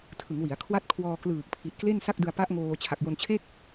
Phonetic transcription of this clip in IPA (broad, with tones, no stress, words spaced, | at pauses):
tʰɯ˩˦ŋwi˩˦a̯kʰwa˥˩t̚ kʰwɔː˧klɯː˨˩k̚pʰi˨˩t̚kle˥˩n sa˥˩k̚dɯ˧a̯pa˦˥ʔŋoː˧ t͡ɕʰa˨˩k̚jo˧nt͡ɕʰe˥˩k̚